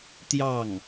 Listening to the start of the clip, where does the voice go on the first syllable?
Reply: falling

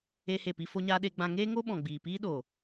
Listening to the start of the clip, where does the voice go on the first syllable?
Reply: high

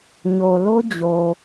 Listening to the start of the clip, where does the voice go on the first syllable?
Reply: low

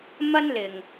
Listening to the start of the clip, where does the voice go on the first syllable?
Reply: high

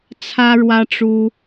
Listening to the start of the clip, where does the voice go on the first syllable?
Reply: high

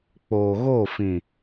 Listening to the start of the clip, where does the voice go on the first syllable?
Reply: low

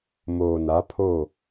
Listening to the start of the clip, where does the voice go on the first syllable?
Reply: low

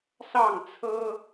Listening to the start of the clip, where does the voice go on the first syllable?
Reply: falling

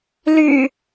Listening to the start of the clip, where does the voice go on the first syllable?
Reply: low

